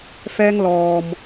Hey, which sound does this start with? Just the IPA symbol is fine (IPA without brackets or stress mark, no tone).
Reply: f